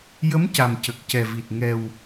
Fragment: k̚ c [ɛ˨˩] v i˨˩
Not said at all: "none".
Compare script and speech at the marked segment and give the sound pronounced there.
ɛ˨˩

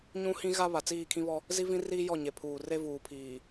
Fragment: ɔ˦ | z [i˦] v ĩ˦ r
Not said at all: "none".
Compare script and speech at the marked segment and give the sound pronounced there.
i˦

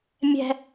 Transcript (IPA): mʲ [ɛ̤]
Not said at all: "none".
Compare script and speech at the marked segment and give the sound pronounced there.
ɛ̤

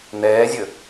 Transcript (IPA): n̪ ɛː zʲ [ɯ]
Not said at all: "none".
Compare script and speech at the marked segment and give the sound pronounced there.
ə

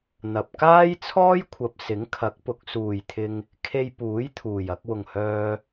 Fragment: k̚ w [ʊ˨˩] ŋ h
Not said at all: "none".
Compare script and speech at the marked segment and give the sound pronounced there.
ʊ˨˩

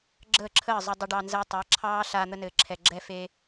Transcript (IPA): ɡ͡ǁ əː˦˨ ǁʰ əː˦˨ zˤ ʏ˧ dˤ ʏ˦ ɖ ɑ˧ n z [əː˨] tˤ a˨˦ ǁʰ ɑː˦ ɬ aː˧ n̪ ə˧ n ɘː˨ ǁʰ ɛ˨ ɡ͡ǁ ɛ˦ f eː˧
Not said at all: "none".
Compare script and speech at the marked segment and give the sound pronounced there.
əː˦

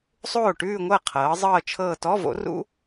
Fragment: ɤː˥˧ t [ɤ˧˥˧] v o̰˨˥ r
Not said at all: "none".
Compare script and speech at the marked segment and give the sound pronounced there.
ɔ˧˥˧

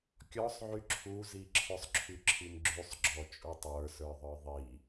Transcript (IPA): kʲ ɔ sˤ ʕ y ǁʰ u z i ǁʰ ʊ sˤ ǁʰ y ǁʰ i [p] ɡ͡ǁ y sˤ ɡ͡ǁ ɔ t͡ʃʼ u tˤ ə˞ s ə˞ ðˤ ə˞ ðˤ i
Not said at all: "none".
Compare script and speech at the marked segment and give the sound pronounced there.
m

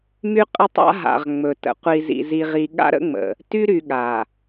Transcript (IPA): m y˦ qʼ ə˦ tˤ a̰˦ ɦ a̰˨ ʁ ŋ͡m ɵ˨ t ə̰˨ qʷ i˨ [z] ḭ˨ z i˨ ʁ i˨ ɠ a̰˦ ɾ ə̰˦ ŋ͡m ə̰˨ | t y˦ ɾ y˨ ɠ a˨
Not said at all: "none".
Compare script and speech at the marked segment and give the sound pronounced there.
z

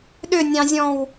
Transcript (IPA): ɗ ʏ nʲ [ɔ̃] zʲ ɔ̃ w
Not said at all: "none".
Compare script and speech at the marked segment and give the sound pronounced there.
ɑ̃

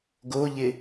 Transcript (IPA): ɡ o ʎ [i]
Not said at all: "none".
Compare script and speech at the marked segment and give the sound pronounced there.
ɪ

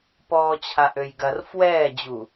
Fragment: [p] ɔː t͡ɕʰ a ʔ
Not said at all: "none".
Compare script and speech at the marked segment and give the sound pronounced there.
p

